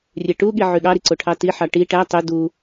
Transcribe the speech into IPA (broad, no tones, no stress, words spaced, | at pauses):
rʲeʈuɠi ʕyɠɑɾi ǀoʈʰɑtiħɑ ʈi ʈæ tˤø du